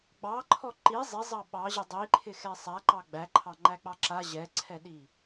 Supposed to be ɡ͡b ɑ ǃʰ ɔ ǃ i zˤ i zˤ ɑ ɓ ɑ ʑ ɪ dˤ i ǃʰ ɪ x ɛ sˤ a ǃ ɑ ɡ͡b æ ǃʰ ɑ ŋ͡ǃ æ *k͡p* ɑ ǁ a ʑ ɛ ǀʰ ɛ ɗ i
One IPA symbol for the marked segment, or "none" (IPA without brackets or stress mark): k͡p